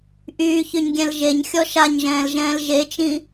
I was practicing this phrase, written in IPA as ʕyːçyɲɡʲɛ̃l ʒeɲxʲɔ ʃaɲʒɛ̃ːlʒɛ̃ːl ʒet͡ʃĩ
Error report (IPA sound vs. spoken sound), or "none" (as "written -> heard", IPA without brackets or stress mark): ʕ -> ʔ